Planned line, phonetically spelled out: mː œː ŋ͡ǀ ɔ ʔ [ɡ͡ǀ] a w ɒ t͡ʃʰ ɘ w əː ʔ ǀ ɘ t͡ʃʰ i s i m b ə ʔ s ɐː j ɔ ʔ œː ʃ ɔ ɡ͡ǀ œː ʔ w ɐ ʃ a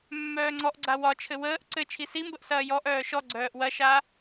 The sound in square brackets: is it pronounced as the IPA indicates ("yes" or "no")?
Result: yes